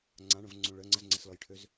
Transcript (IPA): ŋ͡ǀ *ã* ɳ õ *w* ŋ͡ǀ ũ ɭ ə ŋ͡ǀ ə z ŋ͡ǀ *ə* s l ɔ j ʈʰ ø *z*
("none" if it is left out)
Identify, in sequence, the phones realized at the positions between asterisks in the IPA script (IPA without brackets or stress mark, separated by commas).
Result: ã, v, ə, z